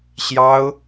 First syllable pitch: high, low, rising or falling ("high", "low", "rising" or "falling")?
high